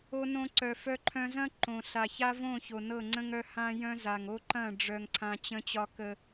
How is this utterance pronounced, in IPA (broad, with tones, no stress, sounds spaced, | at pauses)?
o˦ n õ˦ ǀ œ˨ f œ˦ ǃʰ œ̃˦ z ɐ̃˦ ǃ õ˨ ɬ a˨ ç a˦ v õ˦˨ ç o˨ n ɤ˦˨ ŋ͡ǀ ə̃˦ ŋ œ˦ h ã˦ j œ̃˦ z a˨ ŋ o˦ ǃ ɐ̃˦˨ ɖ͡ʐ œ˦ ŋ ǀʰ ã˦ t͡ɕ ə̃˦ t͡ɕ ɒ˦ k ə˦